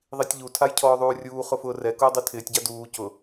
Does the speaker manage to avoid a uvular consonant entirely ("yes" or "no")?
no